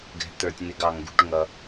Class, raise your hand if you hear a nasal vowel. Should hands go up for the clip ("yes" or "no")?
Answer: no